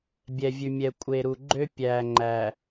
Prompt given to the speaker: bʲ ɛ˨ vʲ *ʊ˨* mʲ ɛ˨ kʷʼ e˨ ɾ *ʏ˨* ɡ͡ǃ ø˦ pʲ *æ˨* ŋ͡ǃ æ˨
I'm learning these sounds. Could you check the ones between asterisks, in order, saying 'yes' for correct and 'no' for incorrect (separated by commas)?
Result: no, no, yes